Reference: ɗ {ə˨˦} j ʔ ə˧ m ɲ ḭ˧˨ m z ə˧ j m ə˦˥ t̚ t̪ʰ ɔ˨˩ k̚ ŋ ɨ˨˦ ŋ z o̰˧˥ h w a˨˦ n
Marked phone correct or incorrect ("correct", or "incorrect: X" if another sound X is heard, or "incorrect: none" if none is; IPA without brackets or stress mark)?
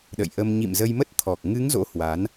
incorrect: ə̰˧˨